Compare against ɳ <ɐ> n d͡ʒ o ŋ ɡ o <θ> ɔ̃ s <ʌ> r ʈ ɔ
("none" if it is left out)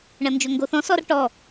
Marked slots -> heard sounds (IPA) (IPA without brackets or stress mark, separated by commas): ɐ, θ, ɔ